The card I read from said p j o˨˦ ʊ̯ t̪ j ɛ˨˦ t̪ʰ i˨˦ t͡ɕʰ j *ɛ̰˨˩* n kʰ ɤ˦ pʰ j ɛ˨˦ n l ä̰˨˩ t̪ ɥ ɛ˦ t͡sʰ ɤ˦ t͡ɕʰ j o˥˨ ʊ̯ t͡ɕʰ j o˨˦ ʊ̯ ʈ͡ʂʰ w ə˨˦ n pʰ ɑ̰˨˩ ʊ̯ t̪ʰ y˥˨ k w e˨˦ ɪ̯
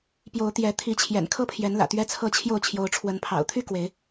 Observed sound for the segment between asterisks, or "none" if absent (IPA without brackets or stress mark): ɛ̰˨˩